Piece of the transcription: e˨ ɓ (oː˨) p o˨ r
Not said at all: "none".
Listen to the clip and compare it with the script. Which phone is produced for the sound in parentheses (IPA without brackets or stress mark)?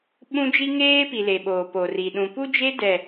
oː˨